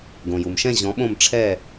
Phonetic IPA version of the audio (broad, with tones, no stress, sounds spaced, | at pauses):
ɡ õ˩ j u˩ m ʃ ɛ̃˥˨ ʑ ɔ̃˨˥ ɓ õ˥˨ m ʈ͡ʂʰ ɛ˥˨